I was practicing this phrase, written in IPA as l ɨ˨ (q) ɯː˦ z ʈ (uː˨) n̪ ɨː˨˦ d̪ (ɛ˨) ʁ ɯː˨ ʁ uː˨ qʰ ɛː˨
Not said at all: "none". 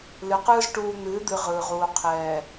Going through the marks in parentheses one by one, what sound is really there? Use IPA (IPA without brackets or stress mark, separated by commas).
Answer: q, uː˨, ɨ˨